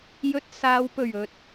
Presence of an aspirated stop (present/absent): absent